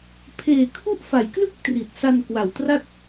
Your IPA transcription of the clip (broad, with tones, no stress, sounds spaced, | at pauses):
pʰ eː˨˩ kʰ u˥˩ ʔ f a˩˦ j k l ɯ˥˩ k̚ t r i˨˩ t̚ s a˧ n k w a˨˩ w t r a˥˩ t̚